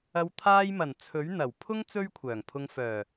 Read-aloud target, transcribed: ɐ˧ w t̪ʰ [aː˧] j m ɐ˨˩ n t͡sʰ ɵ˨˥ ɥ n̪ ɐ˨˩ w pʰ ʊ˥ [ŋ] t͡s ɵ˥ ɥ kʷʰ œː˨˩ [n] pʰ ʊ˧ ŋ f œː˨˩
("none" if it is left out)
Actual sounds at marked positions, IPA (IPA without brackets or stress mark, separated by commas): aː˧, ŋ, ŋ